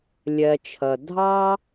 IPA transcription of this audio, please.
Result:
lʲ ɜ˧ t͡ʃʰ ʌ˨ dʱ ɑ˦

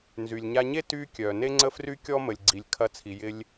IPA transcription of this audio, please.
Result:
n z y˩ lʲ ɲ a˧ ɲ e˥ t y˧ kʲ œ˩ n e˥ ŋ͡ǀ ə˥ f r y˥ kʲ ɔ˥ m ə˩ lʲ ɡ͡ǀ i˩ lʲ kʰ ɐ˧ t͡sʰ i˩ j ɪ˧ lʲ

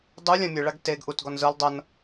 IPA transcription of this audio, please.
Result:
dˤ u lʲ ã mʲ ɯ ɭ a ɡ t e ɡ ʔ u t ɡ ɔ n z ɯ lˠ dˤ ɤ n

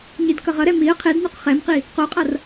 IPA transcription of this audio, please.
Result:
ɲ i d k ʌ ʁ ʌ ɾ ɛ m i ə̯ qʰ e d n u q χ ɛ m q i | q o qʼ ʌ r

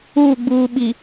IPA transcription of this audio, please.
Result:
uː˦˨ ɡ͡b uː˨ ɓ i˨

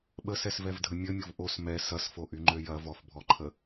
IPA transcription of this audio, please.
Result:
ɓ ə s ɛ s v ɛ v dʱ ə mʲ ə mʲ ʊ v ʔ o s m ɛ s ɐ s f o ʔ y ŋ͡ǃ ø j ɐ v ɔ f bʱ ɔ ǃʰ ə

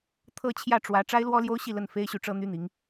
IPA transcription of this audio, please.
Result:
t̪ʰ ɤ˥˧ t͡ɕʰ j ä˥˩ ʈ͡ʂ w ä˧˥ ʈ͡ʂ a˥ ɪ̯ l w ɔ˥ l j o˥ ʊ̯ ɕ i˥˧ l ə˥˩ n f e˥ ɪ̯ ɕ y˥˩ ʈ͡ʂ ɤ˥ n̪ y˥ n̪ i˧˥ ŋ

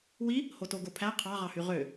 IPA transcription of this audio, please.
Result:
w i | h o t o ɡ o pʰ æ qʰ ɑ ʁ ɑ h y ʁ ø

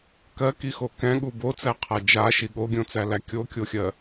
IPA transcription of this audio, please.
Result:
k ɜ k i x o k ɛ̃ ɠ u b o t͡s æ qʰ a d͡ʒ a ʃ i ɠ o ɡʲ õ t͡s æ l æ kʲ o kʲ o xʲ ɜ

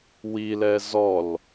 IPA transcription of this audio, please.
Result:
w i l ɛ z ɔ l

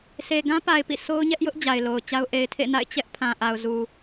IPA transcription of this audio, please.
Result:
sʰ e˨ ɡ ã˦ p a˨ ɪ̯ p ḭ˦˨ s o˦ ʊ̯ ɲ ɛ˦ ʔ j ʊ˦ ʔ d͡ʑ a˨ ɪ̯ l o˨ ʊ̯ t͡ɕ a˦ ʊ̯ ʔ e˨ ɪ̯ tʰ ḛ˦˨ n a̰˦˨ ɪ̯ t͡ɕ ɛ˦ ʔ pʰ ã˨ ʔ a˨ ʊ̯ z u˨

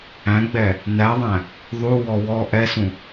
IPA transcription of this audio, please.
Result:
æ̃ ɡ͡b ɛ | n æ ðˤ æ̃ | ðˤ u w ɔ w ɔ ʔ ɛ s ũ

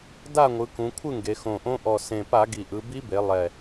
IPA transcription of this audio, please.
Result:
d a˥˨ ŋʷ ɯ˩˧ k ũ˩˧ kʷʰ ɯ˥˨ ŋ ɡ e˩˧ x õ˨˩ ʔ õ˧˥ ʔ ɔ˨˩ s ẽ˨˩ p a˧˩˧ ɡ i˨˩ ʔ ɯ˩˧ b i˧˥ b e˩˧ lˠ ɛ˨˩

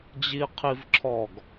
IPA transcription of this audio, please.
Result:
d͡ʑ i qʰ i v ǁʰ ɔ ɡ

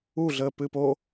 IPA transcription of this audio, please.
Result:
u ɮ əː p ɨ p o

